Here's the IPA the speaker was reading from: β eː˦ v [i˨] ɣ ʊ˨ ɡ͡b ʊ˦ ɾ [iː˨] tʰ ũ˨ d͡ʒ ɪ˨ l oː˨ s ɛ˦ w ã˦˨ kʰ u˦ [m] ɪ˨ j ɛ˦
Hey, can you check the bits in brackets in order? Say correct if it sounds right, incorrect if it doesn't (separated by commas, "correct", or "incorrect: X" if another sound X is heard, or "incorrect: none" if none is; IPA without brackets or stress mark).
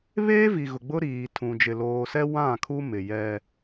correct, correct, correct